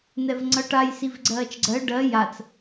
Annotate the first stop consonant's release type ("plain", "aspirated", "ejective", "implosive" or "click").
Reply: click